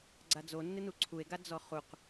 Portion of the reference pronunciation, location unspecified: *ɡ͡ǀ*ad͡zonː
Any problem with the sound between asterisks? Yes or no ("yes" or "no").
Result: no